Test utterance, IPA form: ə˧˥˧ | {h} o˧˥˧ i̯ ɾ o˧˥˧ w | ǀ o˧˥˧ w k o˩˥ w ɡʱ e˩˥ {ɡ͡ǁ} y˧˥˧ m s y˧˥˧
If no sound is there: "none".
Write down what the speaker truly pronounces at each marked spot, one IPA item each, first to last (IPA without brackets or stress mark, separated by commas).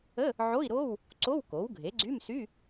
ʕ, ɡ͡ǀ